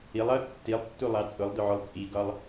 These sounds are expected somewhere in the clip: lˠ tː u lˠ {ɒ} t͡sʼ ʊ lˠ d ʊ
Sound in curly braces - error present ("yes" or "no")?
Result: yes